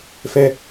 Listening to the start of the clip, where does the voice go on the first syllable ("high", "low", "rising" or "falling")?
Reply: high